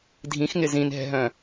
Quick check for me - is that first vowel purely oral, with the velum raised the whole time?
no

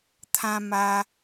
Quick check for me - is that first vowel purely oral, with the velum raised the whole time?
no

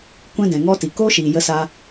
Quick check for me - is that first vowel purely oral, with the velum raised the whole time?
no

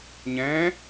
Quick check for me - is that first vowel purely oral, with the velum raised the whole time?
no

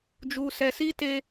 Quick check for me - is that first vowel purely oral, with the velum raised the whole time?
yes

